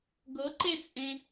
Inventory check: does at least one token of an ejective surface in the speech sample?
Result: yes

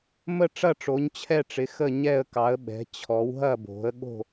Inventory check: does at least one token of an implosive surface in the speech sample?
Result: yes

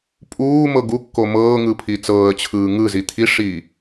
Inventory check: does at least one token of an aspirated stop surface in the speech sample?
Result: yes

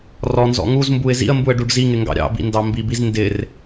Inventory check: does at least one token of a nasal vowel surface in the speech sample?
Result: no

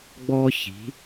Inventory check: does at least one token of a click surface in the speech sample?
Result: no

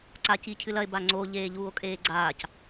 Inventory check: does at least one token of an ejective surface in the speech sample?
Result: yes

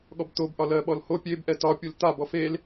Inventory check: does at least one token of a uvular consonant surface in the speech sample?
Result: no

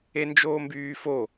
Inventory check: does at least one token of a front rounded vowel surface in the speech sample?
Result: yes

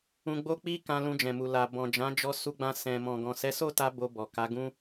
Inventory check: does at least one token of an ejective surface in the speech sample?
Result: no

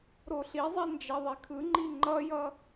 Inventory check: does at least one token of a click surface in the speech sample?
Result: yes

